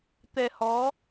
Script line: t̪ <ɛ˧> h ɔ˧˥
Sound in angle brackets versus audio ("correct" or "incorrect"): correct